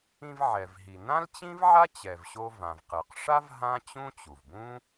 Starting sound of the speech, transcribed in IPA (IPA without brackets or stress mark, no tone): ĩ